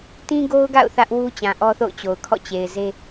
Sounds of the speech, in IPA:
t ĩ˦ ɡ o˦ ʊ̯ ɡ a̰˦˨ ʊ̯ θ ä˦ ʔ w u˦ t͡ɕ ã˨ ʔ ɔ˦ θ o̰˦˨ ʊ̯ t͡ɕ o˨ ʊ̯ kʰ ɔ̰˦˨ t͡ɕ e˨ ɪ̯ z e˦

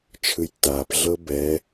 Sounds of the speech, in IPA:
t͡ʃʰ ɯ j tː a p ɮ ɤ b ɛ

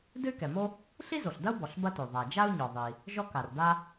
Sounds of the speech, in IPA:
d ɨ˥ y̯ k ɛ˩ m o˥ | ɬ i˥ z o˩ ɬ d ɐ˥ u̯ b ɔ˩ ɬ b ɐ˥ t o˩ ðˤ a˩ d͡ʒ a˥ u̯ ɲ ɔ˩ ðˤ i˩ | ʒ ɔ˥ k a˩ r d a˥

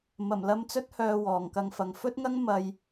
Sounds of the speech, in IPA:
m ɐ˨˩ m l ɐ˧ m t͡s ɵ˥ t̚ h œː˧ w ɔː˨˩ ŋ k ɐ˧ ŋ f ɐ˨ ŋ f ɵ˥ t̚ ŋ ɐ˥ ŋ m ɐ˧ j

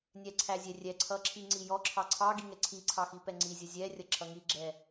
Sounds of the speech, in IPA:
nʲ ɛ ǀʰ æ zʲ ɛ rʲ ɛ ǀʰ ʌ ǁʰ i ŋ͡ǀ i j ɔ ǁʰ ɑ ǀʰ ɑ ɡ i ŋ ɛ ǀʰ i ǀʰ ɑ x i p ɛ ŋ͡ǀ i zʲ ʌ zʲ ɛ rʲ ʌ ǁʰ ʌ ŋ i ɡ͡ǁ ɛ

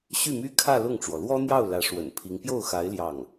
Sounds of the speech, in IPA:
ɕ y˥˩ m y˥ kʰ ä˥˧ l ʊ˥˩ ŋ ʈ͡ʂ w ɔ˩ l w ɔ˥ n̪ j ɑ˥˩ ʊ̯ l ä˧˥ ʂ w ə̰˨˩ n pʰ i˧˥ ŋ p j o˥˩ ʊ̯ x a˧˥ ɪ̯ l j ɑ˥˩ ŋ

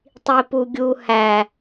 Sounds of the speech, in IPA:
tˤ i p u ɡʲ u h æ

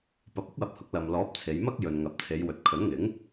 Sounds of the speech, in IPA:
p ɐ˨˥ p̚ ʊ˥ k̚ w ɐ˨˥ p̚ h ʊ˨˥ k̚ l ɐ˨ m l ɔː˨˥ p̚ t͡sʰ e˨˧ j m ɐ˥ k̚ j ɵ˨ n ŋ ɐ˨ p̚ t͡sʰ e˨˧ j w ɵ˨ t̚ kʰ ɵ˨˥ n ŋ ɪ˨˥ ŋ

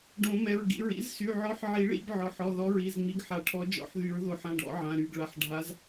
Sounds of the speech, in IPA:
ɖ õ˨˩˦ m ɛ˩˧˩ ɹ ɡ ḭ˩˧˩ ɹ ḭ˨˥ z s y˩˧˩ ʕ ɔ˨˥ ħ ʕ i˨˩˦ ɭ ḭ˨˩˦ b ʕ ɔ˩˧˩ ħ ɔ˩˧˩ ð ɔ˨˥ ɹ i˩˧˩ z ŋ͡m i˨˥ ɡ ħ a˨˩˦ ʈʰ ɔ˨˥ d͡ʒ ɔ̰˨˥ ħ ð y˨˩˦ ɹ ð o˨˩˦ ħ ã˩˧˩ ɖ ɔ̰˨˩˦ ʕ ã˩˧˩ ɾ y˩˧˩ ɡ ɭ a˩˧˩ ħ ɖʱ a˨˥ z

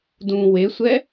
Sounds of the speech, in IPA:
d ũ w e sʷ ɛ

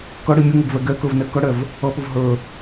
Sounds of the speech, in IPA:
k ʌ ɽ i mʲ ə ŋ ə ɡ v ɛ ɡ ɛ k ə˞ v n ɛ k ʌ ɽ ɛ v | ʌ p ʊ v ɦ ə˞

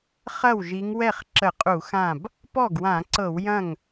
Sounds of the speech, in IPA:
χ ɐ˥˩ w ʒ i˨˦ ŋ w ɛ˥˩ χ ǁ ə˧˩˧ qʼ u˧˩˧ x ã˥˩ b | p ɔ˥˩ ɡ w ã˧˩˧ ǀ ɤ˧˩˧ w j ɐ̃˥˩ ŋ

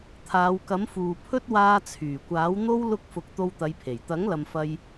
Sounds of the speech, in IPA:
t̪ʰ aː˨˧ w k ɐ˨˥ m f uː˨ pʰ ɵ˥ t̚ w aː˧ t͡sʰ yː˨˩ kʷ aː˨˥ w n̪ o˥ w l ʊ˧ k̚ f ʊ˨ k̚ t̪ o˧ w t̪ ɐ˨˧ j pʰ e˨˩ j t̪ ɐ˨˥ ŋ l ɐ˨ m f ɐ˧ j

